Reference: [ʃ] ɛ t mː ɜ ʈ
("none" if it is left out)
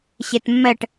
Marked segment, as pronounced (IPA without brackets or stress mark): ɕ